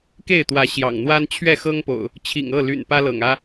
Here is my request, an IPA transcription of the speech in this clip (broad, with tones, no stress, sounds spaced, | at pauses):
k e˥˨ ɪ̯ t̪ w ä˨˦ ɕ j ɑ̰˨˩ ŋ n̪ w a˦ n t͡ɕʰ ɥ ɛ˥˨ x ɤ˦ ŋ p o̰˨˩ ʊ̯ | t͡ɕʰ ḭ˨˩ ŋ ɤ˥˨ l y̰˨˩ n p ä˦ l ɤ̰˨˩ ŋ ä˦